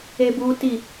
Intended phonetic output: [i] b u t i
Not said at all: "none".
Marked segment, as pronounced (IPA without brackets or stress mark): e